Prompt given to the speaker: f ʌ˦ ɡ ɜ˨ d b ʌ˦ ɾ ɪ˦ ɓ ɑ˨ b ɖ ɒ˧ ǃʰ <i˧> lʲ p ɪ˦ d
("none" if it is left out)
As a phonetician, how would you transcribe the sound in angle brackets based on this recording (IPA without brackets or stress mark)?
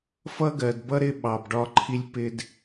i˧